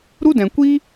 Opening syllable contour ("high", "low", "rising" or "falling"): high